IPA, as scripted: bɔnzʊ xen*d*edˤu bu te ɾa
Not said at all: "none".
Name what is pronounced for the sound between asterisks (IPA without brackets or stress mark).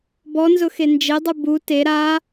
d͡ʒ